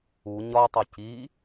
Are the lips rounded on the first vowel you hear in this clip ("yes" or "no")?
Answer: yes